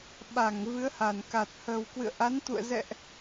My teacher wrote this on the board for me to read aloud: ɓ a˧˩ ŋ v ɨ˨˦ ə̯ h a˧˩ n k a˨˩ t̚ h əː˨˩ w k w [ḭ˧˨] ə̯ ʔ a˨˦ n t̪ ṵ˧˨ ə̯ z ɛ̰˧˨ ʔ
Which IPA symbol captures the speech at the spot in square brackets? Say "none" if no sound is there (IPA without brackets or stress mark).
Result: ɨ̰˧˨